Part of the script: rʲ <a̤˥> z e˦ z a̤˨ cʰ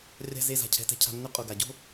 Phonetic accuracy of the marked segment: correct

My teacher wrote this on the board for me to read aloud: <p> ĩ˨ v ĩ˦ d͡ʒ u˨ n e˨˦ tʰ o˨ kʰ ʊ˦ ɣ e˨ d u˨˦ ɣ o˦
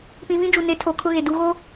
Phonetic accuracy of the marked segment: correct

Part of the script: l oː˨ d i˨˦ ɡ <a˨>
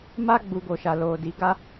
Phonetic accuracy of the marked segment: incorrect: a˦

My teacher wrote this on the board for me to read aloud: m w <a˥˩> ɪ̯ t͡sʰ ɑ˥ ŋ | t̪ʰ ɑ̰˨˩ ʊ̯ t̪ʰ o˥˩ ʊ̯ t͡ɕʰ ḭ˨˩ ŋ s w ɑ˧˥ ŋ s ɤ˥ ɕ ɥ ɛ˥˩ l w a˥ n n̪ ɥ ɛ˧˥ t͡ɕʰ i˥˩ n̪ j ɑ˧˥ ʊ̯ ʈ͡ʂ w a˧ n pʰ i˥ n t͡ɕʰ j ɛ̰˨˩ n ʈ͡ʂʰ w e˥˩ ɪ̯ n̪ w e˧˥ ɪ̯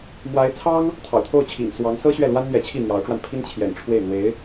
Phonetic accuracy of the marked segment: incorrect: a˧˥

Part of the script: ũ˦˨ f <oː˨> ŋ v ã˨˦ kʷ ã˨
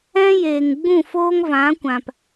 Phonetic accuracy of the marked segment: incorrect: oː˦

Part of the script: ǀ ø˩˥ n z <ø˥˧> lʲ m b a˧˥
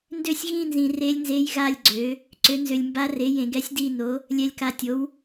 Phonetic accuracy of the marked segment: incorrect: ø˨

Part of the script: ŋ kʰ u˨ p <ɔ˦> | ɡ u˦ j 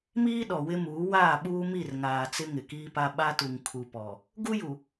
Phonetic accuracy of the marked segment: incorrect: ɔ˨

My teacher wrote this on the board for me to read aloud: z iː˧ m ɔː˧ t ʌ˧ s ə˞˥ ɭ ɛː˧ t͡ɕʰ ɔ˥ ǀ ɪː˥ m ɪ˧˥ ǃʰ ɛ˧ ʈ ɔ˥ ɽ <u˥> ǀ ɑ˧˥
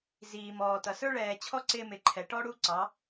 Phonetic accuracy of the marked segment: correct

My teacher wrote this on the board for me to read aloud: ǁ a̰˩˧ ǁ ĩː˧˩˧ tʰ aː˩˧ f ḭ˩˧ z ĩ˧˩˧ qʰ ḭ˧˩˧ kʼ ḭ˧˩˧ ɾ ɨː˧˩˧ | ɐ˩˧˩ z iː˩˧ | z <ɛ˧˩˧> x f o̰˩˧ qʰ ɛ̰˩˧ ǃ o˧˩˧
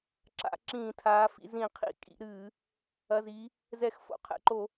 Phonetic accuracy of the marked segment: correct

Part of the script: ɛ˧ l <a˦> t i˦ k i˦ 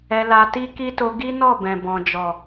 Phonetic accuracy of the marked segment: incorrect: a˧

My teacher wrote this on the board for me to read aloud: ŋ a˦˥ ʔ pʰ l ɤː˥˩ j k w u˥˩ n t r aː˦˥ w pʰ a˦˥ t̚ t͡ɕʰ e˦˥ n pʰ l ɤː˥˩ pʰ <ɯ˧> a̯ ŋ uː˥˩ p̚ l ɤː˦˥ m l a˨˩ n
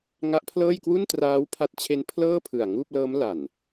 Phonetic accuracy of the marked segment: incorrect: ɯ˨˩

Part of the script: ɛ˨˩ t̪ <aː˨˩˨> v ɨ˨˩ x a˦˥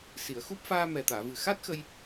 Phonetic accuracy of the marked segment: correct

